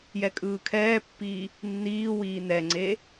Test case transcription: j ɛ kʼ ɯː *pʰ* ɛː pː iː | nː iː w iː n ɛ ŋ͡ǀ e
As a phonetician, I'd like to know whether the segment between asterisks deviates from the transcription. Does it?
yes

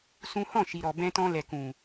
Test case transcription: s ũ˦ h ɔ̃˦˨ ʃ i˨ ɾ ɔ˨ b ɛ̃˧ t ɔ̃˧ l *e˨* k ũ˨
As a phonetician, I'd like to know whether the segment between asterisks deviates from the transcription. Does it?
yes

